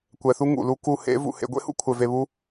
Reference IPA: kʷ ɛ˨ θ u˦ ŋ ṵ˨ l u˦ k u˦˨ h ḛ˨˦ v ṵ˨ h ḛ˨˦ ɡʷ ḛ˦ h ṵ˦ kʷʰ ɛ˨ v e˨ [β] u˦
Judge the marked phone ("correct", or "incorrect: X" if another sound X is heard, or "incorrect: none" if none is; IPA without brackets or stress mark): correct